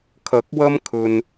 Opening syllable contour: rising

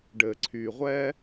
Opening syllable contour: low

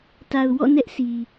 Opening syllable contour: low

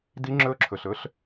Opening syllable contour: high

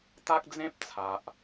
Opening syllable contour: high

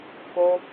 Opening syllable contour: high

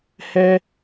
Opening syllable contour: high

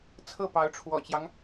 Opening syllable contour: falling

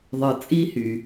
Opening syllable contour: low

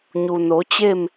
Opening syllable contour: low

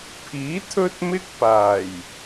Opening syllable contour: rising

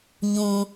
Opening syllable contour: low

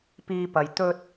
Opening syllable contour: high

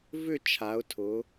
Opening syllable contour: falling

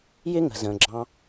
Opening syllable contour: high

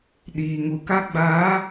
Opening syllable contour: low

